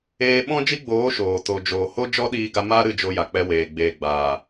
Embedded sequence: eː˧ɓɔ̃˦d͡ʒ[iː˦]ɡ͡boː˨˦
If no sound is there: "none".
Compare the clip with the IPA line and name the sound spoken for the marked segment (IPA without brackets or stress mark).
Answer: i˦